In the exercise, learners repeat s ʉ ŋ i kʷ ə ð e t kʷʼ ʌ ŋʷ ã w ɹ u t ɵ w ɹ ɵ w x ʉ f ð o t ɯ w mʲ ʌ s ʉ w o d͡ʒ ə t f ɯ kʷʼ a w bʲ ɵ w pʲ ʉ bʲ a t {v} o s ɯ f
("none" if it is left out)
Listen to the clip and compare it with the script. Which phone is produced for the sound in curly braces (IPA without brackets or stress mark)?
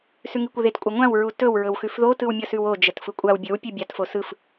f